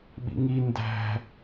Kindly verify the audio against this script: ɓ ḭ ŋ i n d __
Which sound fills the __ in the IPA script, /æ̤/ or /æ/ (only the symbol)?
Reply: æ̤